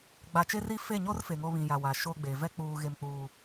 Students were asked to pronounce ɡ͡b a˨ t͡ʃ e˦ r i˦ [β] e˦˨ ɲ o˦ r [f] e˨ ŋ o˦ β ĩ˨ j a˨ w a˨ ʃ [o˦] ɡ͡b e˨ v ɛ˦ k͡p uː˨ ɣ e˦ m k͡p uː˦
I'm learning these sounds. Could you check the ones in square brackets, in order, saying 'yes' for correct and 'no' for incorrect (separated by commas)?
no, yes, yes